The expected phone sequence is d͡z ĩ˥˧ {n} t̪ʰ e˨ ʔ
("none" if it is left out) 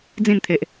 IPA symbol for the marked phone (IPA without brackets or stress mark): n